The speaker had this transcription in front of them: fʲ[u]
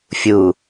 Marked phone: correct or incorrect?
correct